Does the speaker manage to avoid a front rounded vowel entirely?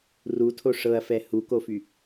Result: no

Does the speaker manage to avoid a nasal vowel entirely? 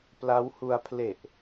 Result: yes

